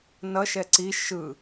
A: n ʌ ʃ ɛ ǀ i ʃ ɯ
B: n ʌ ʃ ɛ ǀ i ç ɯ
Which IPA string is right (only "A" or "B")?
A